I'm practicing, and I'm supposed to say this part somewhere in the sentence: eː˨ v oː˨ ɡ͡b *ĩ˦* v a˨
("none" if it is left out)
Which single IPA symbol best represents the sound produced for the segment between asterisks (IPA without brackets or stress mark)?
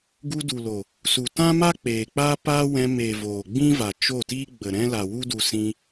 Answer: ĩ˦